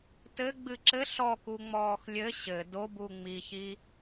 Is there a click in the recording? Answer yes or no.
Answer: yes